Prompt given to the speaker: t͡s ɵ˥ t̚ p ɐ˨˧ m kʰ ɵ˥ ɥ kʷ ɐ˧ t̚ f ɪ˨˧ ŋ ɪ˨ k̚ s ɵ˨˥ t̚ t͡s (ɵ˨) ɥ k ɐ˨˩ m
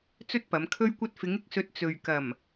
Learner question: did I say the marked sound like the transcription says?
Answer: yes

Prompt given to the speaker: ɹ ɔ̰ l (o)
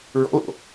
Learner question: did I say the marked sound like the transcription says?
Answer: no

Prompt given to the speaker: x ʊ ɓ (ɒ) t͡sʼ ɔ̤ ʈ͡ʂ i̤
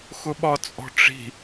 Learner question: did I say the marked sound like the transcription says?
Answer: yes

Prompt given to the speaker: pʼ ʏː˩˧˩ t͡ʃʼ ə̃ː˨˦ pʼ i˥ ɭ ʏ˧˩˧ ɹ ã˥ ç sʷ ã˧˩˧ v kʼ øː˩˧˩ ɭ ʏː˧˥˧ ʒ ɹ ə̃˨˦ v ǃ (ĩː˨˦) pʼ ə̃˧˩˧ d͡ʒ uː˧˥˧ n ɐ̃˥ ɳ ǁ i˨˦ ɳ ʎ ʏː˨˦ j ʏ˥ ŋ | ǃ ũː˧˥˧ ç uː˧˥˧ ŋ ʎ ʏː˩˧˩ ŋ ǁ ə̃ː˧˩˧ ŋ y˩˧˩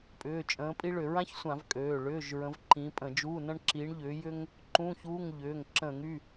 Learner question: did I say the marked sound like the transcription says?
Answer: no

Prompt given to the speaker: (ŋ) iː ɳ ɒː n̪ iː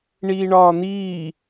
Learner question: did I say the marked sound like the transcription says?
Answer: no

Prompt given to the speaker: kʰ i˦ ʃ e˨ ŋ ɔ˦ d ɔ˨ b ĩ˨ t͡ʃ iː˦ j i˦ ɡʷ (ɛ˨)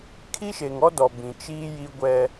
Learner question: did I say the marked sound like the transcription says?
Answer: no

